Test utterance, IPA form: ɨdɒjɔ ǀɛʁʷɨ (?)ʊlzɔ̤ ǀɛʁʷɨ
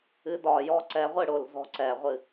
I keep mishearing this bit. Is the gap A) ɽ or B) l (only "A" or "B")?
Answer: A